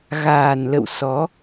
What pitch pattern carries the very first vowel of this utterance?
low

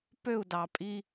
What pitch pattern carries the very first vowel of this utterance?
falling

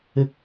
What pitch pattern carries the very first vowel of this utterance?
low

